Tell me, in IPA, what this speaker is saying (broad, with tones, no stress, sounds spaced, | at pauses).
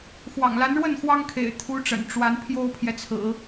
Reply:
x w ɑ̰˨˩ ŋ l a˧˥ n ɻ w ə˥˩ n x w ɑ˥ ŋ kʰ ḛ˨˩ ɪ̯ t̪ʰ u˧˥ ʈ͡ʂ ə̰˨˩ n ʈ͡ʂ w a˧˥ n pʰ j o˥ ʊ̯ pʰ j ɛ˨ t͡sʰ ɹ̩˨˩˦